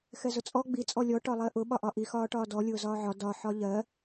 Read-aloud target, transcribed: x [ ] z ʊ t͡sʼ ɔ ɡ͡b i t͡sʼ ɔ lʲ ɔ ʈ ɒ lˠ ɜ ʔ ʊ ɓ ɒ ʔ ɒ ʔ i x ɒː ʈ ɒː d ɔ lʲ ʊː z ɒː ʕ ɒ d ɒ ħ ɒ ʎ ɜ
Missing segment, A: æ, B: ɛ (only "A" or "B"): B